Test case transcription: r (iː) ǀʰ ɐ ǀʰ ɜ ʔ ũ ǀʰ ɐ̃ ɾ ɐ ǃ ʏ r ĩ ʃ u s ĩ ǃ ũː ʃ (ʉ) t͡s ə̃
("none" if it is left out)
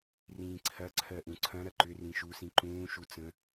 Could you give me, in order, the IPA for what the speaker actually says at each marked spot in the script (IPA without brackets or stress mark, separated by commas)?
ĩː, u